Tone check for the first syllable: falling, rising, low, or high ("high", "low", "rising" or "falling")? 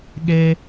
high